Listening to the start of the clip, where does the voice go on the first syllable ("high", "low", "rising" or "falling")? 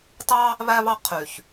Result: high